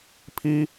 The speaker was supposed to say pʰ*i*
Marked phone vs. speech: correct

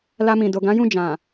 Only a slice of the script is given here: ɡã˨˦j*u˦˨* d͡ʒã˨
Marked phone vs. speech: incorrect: ũ˦˨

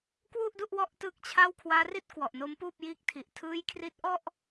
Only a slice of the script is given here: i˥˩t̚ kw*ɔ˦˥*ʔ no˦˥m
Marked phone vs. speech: incorrect: ɔ˨˩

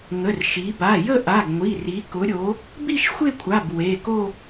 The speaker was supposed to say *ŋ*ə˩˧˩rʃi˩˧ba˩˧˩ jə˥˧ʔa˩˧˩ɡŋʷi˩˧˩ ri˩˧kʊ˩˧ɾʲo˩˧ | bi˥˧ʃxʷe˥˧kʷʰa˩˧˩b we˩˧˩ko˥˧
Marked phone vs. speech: correct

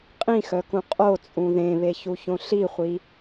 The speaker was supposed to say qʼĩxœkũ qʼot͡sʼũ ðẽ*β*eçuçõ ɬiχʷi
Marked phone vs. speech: correct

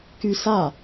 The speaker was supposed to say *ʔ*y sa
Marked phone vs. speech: incorrect: k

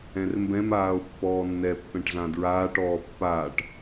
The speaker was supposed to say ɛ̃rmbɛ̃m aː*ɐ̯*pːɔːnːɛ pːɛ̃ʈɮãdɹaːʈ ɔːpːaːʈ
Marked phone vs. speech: incorrect: o̯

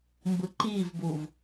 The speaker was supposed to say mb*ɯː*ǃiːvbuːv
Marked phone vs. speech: incorrect: ɯ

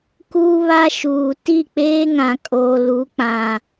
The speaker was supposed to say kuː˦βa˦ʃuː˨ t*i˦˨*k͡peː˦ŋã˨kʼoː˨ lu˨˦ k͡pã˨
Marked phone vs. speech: correct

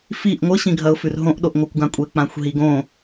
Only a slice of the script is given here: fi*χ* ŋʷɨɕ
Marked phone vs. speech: incorrect: ʔ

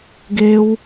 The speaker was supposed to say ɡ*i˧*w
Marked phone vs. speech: incorrect: e˧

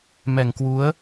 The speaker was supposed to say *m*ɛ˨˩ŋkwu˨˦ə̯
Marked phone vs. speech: correct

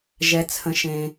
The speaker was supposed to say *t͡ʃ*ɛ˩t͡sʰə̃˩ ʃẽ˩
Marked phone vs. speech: incorrect: ʒ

